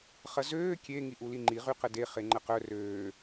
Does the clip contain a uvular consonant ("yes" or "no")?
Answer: yes